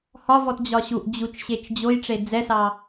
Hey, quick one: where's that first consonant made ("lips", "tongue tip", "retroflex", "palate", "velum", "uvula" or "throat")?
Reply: throat